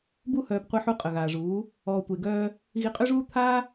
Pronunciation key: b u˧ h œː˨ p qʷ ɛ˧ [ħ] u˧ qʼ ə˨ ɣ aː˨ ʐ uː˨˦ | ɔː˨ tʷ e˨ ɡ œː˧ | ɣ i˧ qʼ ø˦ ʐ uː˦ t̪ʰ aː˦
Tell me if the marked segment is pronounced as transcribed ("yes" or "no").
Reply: yes